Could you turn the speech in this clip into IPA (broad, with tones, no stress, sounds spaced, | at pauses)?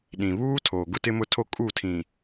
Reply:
ɗ ĩ˨ β uː˦ tʰ oː˨ ɡ ʊ˦ t ɪ˦ m ʊ˦ tʰ o˦ kʼ u˦˨ tʰ ĩ˨